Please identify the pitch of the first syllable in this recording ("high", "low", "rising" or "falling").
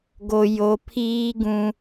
low